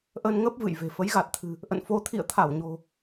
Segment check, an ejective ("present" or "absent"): absent